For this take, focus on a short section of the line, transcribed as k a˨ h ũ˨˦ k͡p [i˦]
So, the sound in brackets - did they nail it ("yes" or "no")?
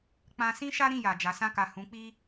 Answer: yes